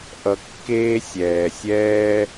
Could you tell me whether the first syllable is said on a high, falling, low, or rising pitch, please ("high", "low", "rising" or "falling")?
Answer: low